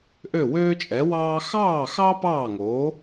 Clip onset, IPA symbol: ʔ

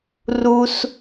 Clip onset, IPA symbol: r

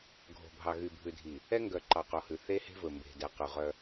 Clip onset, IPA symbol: ɡʱ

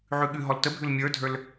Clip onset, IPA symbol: ʕ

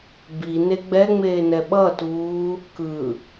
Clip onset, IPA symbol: b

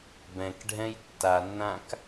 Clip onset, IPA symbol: b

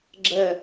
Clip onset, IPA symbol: ɡ͡ǁ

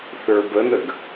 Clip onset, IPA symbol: θ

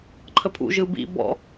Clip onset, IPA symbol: ǃʰ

